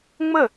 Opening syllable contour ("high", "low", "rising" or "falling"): falling